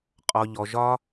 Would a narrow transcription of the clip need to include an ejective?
yes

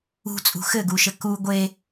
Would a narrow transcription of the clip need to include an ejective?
yes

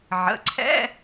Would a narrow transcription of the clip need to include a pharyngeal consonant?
yes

